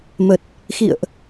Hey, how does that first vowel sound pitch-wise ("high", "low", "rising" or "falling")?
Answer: low